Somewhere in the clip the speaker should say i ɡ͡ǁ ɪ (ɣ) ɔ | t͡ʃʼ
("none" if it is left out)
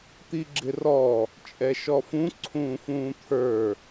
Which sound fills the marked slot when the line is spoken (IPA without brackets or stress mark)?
r